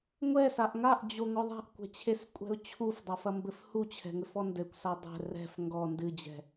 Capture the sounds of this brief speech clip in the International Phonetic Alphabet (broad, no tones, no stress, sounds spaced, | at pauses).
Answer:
ŋʷ ɛ s a ʔ ŋ a ʔ d͡ʑ o ŋ ɔ ðˤ a̤ ʔ kʷ ɛ̤ t͡ɕʰ e s kʷʼ ɛ̤ ʊ̯ t͡ɕʰ u f dˤ a f ɐ m b ɘ f h u t͡ɕʰ ɛ̤ ŋ ɘ f ɔ n d ɘ kʷ s a dˤ ɛ̤ r ɛ̤ f ŋ ɡ ɔ n d ɨ d͡ʑ ɛ̤